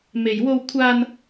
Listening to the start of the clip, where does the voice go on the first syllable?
low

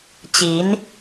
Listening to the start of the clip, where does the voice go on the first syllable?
rising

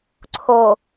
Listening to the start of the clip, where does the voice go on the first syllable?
low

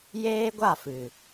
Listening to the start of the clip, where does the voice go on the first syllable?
high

